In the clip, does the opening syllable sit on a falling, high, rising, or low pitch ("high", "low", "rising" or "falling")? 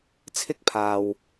high